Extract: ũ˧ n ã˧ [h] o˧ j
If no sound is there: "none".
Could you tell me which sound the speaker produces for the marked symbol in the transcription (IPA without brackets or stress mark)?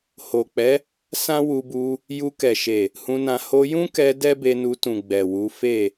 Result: h